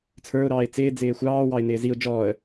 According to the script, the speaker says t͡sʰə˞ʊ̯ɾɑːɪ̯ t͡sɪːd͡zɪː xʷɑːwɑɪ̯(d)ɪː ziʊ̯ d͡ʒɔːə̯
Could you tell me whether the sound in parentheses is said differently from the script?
yes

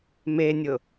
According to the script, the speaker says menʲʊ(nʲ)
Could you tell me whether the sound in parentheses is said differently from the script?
yes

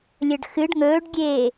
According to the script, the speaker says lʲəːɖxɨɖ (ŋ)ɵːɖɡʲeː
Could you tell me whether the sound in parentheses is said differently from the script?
no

